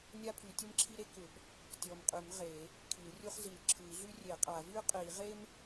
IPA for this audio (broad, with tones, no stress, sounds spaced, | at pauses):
nʲ a˥ pʰ y˨˩˦ tʲ ɯ˥ m ǁʰ i˥ ɾ e˥ k ʏ˨˩˦ b | tʲ ɔ˨˩ m qʼ y˨˩˦ m ʁ e˨˩˦ | kʰ i˨˩˦ l rʲ u˥ χ z i˨˩ l ǁʰ ɯ˨˩˦ i̯ ɮ y˥ rʲ e˨˩˦ qʼ a˨˩˦ v y˥ qʼ i˨˩˦ ʁ e˥ m